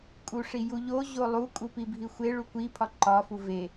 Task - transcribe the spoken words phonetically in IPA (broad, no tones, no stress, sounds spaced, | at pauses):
kʼ u ʂ i j u ʎ o ʑ o lˠ u kʼ u p i bʱ i xʷ e ɭ u kʷ i pʰ ɒ ǃ ɒ f u v e